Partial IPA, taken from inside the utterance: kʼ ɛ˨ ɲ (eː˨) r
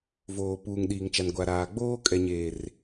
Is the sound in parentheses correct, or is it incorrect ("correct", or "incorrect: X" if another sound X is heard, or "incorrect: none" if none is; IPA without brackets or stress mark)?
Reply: correct